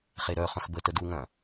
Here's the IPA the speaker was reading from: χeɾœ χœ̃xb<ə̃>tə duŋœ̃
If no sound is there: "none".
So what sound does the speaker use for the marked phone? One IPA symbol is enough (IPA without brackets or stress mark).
ə